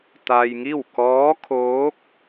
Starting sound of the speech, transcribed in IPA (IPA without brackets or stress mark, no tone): t̪